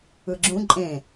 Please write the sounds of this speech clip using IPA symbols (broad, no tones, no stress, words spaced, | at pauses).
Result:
ɯɡ͡ǁũ ǃʼẽ